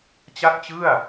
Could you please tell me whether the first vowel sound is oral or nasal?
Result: oral